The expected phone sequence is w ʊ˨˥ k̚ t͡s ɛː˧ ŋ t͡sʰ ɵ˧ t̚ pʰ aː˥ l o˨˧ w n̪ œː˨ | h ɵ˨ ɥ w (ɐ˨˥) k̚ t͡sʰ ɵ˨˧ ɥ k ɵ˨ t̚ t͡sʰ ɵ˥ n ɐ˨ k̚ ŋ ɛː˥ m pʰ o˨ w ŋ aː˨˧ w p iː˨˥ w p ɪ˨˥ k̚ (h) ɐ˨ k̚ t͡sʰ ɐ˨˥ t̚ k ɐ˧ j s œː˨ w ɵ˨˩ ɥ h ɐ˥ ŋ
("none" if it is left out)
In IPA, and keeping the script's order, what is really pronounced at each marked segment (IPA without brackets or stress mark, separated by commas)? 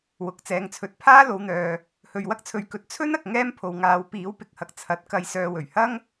ɐ˥, h